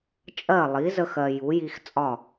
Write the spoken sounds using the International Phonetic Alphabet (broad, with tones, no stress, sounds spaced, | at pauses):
t͡ʃʼ ɜ˥˩ lˠ i˩˥ z ə˦ x ɜ˨ j u˩˥ j i˦ x t͡sʼ ɒ˥˩